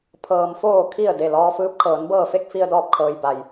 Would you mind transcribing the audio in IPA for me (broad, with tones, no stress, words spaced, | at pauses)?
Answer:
pʰɤː˩mfoː˧˩kʰi˧˩ə̯ de˧˩lɔː˧fɯː˧p̚kʰɤː˩˧n bɤː˧˩fe˥˨k̚ fi˧ə̯dɔː˧˩p̚kʰɤː˩j ba˩j